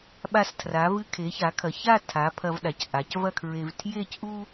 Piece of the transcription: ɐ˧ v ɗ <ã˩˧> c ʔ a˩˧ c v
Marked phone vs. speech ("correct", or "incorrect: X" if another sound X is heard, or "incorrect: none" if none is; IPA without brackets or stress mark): incorrect: a˩˧